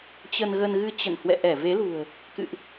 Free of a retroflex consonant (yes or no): yes